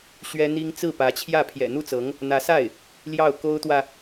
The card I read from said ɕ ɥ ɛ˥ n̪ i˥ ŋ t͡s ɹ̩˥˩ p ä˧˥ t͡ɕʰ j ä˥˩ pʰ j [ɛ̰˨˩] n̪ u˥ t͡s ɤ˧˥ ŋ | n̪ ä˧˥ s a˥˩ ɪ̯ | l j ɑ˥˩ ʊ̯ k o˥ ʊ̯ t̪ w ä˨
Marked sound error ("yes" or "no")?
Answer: no